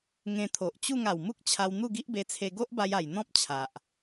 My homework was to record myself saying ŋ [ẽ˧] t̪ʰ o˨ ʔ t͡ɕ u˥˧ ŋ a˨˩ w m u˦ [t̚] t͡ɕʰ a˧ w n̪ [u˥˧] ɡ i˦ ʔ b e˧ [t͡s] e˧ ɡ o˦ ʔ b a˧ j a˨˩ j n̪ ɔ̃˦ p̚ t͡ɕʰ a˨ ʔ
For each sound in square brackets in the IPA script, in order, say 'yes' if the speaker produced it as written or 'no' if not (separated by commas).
yes, no, yes, no